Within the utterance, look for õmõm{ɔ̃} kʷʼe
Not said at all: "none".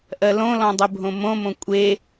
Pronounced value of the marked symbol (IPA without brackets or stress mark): õ